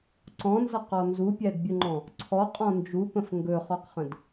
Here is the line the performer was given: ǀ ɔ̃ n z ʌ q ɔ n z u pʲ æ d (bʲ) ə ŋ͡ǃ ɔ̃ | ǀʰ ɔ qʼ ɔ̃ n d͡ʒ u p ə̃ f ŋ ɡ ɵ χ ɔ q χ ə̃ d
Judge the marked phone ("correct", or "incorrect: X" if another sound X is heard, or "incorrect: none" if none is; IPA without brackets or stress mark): correct